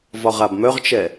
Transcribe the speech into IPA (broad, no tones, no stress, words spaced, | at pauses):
vɒʁabmœʁt͡ʃɛ